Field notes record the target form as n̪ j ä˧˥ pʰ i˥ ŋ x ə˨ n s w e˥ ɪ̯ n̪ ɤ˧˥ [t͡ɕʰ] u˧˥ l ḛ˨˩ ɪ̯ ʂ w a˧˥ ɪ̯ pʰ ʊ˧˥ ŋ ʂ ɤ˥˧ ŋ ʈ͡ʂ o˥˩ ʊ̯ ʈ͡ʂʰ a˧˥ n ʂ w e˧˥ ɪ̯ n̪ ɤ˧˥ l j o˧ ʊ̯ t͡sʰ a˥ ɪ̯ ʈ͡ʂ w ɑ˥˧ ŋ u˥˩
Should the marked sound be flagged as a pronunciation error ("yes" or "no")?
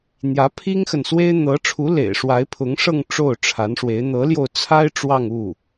yes